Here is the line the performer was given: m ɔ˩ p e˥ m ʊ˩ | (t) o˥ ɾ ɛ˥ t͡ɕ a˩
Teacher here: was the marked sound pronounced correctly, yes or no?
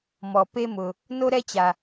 no